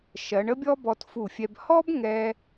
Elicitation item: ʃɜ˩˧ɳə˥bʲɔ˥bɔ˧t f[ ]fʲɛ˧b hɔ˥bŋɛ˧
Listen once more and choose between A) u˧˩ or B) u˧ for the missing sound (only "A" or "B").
A